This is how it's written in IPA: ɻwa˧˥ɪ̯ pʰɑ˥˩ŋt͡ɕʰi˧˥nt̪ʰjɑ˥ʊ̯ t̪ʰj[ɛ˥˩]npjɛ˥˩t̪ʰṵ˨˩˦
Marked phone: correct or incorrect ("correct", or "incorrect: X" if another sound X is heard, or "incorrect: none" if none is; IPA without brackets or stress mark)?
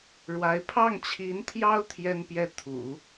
incorrect: ɛ˥